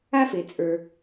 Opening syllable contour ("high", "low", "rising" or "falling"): high